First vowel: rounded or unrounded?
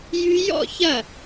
rounded